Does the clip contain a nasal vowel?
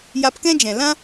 yes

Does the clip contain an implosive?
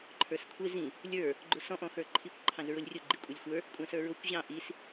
no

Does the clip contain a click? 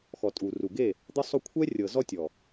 no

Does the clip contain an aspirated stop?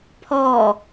yes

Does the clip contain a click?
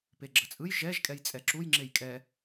yes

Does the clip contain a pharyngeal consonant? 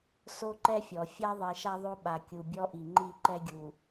no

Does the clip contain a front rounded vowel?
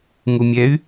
yes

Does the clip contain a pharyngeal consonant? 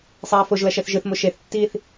no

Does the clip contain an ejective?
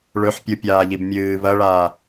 no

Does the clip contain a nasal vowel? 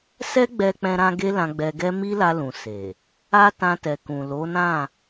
yes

